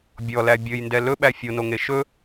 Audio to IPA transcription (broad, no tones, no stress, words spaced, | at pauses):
bʲɔlæ bʲɵjndɛ lɵɓæ fʲonoŋe ʃɵ